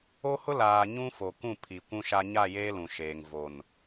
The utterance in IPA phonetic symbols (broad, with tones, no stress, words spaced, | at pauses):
o˦hʊ˦ laː˨ɲũ˦ fo˨kũ˦˨ pʰi˨kʷũ˦ʃa˦ ɲa˦˨jeː˦ lũ˨ʃeː˨ŋ vo˨n